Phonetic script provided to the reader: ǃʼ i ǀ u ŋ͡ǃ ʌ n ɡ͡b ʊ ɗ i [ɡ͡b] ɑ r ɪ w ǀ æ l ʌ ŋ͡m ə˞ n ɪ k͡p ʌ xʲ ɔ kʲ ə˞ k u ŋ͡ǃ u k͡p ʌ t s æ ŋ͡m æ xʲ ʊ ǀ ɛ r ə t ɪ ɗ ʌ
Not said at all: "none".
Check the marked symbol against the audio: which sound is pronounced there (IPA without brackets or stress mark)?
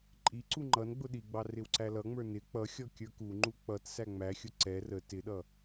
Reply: ɡ͡b